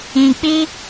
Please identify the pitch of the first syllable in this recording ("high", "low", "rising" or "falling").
low